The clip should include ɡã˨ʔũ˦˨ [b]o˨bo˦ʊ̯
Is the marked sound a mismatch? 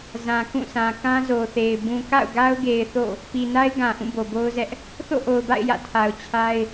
no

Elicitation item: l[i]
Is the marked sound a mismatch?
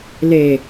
yes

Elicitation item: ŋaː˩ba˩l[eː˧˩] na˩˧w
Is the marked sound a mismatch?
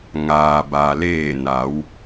no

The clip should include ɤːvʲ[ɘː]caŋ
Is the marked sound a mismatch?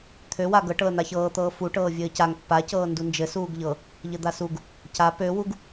no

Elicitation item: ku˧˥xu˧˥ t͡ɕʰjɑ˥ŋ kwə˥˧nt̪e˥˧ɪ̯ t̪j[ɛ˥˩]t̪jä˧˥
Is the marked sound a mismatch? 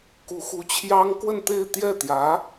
no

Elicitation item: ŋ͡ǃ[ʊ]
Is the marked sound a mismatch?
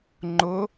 no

